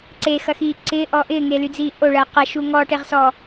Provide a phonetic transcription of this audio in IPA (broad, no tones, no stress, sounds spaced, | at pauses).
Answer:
ǀ e x ɐ x iː ǀ ɪː ʔ ɔ ʔ ɪː ŋ e l y d͡z iː ʔ o ɭ ɐː q ɐ ʃ u ŋ ɔ ʈ e ʁ s ɔ